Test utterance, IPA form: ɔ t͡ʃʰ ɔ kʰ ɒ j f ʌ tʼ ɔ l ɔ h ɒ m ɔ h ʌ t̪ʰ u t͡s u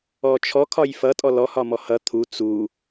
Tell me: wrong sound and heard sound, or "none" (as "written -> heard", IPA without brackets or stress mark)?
none